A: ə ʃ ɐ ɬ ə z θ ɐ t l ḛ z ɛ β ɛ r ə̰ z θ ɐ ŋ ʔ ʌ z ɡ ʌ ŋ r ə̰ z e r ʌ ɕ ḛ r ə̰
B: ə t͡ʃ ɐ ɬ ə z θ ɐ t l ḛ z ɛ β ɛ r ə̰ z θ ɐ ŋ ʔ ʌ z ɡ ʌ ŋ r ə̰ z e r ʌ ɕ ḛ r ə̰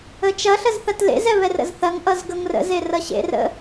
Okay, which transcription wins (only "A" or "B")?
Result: B